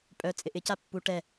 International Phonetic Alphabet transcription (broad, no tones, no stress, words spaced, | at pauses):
pʼœ t͡sʼɪʔɪ capːu ʈɛ